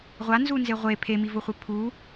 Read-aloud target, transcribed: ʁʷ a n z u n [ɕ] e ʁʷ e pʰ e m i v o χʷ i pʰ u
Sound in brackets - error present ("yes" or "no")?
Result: yes